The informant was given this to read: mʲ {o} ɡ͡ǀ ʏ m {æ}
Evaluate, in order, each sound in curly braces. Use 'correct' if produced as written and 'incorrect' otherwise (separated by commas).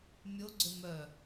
correct, incorrect